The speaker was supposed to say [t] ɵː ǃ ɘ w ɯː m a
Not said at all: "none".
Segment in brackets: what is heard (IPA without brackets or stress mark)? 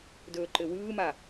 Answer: d